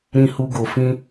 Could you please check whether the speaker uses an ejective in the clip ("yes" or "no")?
no